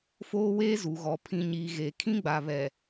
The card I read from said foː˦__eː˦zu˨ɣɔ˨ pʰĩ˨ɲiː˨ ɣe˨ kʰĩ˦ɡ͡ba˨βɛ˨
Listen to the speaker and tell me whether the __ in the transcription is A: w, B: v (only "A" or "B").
A